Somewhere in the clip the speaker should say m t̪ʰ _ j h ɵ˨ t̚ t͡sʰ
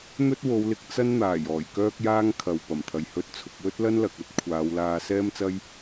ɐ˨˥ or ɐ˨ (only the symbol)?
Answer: ɐ˨